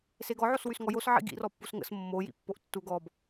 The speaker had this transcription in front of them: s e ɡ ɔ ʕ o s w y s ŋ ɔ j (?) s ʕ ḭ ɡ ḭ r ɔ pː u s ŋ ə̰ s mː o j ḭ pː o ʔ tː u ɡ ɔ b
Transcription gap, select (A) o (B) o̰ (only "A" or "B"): A